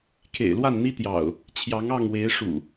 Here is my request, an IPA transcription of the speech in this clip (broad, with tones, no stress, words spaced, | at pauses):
kʰḛ˨˩ɪ̯lwa˥˨nn̪i˦t̪jɑ̰˨˩ʊ̯ | t͡ɕʰjɑ˨˦ŋɑ˥˨ŋwe˨˦ɪ̯ʂṵ˨˩